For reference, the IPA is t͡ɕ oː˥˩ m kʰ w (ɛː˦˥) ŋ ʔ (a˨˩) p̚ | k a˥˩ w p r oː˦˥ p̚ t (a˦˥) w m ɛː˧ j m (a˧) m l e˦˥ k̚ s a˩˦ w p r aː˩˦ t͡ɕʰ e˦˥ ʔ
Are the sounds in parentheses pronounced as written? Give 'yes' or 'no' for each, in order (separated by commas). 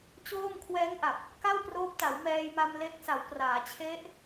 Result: yes, yes, no, yes